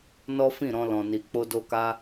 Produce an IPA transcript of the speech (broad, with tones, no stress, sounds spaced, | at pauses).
n ɔ˦ f ĩ˦˨ ɾ ɔ̃˧ l ɔ̃˨ n i˨ k͡p o˧ d o˧ k a˦